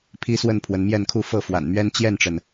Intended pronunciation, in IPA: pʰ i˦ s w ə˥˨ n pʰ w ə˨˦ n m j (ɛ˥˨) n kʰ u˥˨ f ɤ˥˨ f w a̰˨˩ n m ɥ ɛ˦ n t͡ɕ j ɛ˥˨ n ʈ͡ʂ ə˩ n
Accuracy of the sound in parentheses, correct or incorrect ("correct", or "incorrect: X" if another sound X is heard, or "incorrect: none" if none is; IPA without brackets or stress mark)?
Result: correct